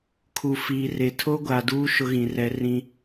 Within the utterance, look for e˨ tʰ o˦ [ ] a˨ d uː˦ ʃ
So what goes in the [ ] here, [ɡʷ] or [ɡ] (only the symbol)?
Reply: ɡʷ